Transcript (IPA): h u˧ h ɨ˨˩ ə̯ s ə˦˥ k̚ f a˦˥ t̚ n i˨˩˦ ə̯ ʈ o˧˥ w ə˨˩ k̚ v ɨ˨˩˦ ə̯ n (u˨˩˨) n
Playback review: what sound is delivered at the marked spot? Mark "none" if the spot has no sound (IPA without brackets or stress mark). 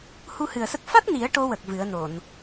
o˨˩˨